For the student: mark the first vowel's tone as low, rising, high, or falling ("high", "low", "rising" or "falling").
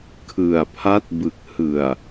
low